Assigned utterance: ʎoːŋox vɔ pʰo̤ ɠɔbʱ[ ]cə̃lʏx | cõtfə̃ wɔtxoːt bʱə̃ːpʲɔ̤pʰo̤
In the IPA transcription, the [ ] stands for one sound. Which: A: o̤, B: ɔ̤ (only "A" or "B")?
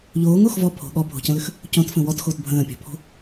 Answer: A